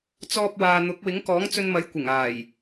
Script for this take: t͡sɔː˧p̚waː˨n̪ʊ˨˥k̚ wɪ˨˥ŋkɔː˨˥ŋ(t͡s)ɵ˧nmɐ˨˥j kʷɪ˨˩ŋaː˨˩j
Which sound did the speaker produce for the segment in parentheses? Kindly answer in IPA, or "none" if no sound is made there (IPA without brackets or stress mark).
t͡s